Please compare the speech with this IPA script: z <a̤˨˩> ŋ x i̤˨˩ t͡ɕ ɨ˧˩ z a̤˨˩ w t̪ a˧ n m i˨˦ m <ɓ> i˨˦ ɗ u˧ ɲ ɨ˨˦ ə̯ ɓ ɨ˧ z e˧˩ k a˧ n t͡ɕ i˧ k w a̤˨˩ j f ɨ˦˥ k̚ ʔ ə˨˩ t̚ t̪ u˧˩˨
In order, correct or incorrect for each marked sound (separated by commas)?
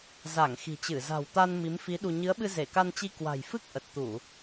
incorrect, incorrect